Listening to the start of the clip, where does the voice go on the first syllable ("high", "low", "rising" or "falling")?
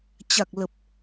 low